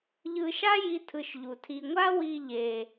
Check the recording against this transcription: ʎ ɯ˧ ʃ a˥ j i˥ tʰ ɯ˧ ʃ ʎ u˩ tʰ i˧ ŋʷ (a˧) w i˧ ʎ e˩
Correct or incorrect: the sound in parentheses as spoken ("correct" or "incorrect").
incorrect